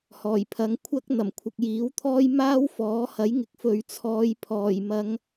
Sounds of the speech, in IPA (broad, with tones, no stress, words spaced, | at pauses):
hɔː˨˩jpʰɐ˨˥ŋkʷʰɐ˥k̚ n̪ɐ˨˩mkʷʰɪ˨k̚ jiː˨˥wt̪ʰɔː˥j maː˥wfɔː˨˥hɐ˨˥jŋɪ˨k̚ fɵ˨ɥt͡sʰɔː˨˧j pʰɔː˨˩jmɐ˨˧ŋ